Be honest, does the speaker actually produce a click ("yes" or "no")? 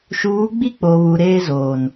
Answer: no